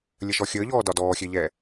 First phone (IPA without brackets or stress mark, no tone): lʲ